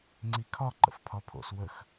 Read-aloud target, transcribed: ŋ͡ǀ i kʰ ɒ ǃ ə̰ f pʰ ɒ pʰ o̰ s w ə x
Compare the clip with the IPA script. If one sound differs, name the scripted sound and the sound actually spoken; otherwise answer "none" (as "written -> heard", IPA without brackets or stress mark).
none